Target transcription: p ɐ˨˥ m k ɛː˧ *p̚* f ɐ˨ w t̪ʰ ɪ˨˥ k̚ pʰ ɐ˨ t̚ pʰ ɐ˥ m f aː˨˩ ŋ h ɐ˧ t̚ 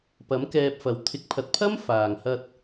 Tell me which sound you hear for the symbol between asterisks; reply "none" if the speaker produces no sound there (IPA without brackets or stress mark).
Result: p̚